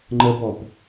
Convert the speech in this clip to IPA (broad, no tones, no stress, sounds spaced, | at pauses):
ŋ͡ǃ ə b ɔ p